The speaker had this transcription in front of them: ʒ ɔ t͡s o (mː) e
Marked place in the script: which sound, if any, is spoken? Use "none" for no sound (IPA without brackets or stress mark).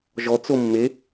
mː